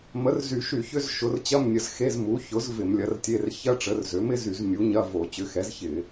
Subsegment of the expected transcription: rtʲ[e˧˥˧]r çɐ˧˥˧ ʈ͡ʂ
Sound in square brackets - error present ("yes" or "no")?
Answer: no